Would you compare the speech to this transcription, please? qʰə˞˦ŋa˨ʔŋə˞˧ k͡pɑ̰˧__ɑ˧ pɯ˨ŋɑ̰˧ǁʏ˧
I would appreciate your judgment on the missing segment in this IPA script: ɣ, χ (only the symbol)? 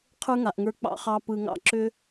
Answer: χ